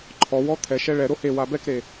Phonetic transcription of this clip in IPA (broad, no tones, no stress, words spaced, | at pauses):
ǃʰɔwɔ t̪ʰɛʃɛ ɭɛ ɾohewa bɛkɾe